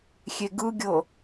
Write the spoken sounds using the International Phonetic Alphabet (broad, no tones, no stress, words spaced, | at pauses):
xʲeɡɯɡʲɤ